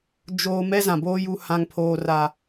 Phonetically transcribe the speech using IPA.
d͡ʒoː˦ mɛ˦zã˨boː˦ ju˦ hã˦ŋpʰoː˦ra˦

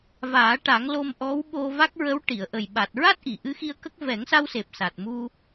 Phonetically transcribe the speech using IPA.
vaː˨˩˦ʈa˨˩˦ŋ lo˧mʔɔ˧˥w ɓo˧va˦˥k̚ɹə˧˥w ʈi˨˩˨ə̯ʔə˨˩j ɓa˨˩t̚ɹa˦˥t̚ ʔi˨˩˨ʔɨ˧˥xi˧ə̯ kə˦˥k̚ vɛ˨˩˦ŋsa˧wse˨˩p̚ sa˨˩t̚mu˧

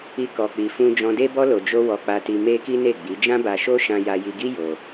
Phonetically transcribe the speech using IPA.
i˧kɔ˨k͡pi˨fũ˧ d͡ʒɔ̃˧de˦bɔ˦ lo˧d͡ʒo˦ wɔ˧k͡pa˧ti˧ me˦ki˦ne˦˨ɡ͡bi˨˦ d͡ʒã˦ba˧ʃo˦ ʃã˧ja˧ji˧ɡi˦ jo˧

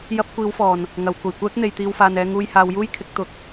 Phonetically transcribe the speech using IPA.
jɐ˥p̚ kʷiː˨˧wfɔː˨˩n | ŋɐ˨w kʷɐ˨˩jkʷɛː˥k̚n̪e˨j t̪iː˧wfaː˨nɛː˧ ŋuː˧jhaː˨˧wjuː˥jkʰɪ˨˥k̚ t̪ʊ˧k̚

